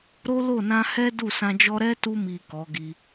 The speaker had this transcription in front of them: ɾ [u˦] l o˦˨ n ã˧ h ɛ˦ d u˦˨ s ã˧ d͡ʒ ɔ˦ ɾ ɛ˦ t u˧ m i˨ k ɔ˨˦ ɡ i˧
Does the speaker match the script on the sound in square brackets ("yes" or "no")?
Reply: no